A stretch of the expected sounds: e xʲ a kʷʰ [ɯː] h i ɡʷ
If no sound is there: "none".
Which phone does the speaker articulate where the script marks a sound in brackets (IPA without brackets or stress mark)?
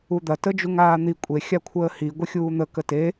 əː